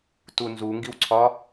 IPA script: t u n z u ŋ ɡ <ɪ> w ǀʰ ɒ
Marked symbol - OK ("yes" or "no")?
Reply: no